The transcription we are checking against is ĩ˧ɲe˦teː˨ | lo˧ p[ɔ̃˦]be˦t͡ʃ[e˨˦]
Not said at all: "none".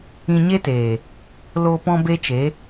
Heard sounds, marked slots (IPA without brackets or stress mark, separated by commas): ɔ̃˦, e˨˦